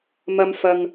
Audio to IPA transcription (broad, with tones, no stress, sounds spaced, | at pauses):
m ɐ˧ m f ɐ˨ ŋ